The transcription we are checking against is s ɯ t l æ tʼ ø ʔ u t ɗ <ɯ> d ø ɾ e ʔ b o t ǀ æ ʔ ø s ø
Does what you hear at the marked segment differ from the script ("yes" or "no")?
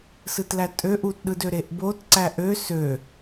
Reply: no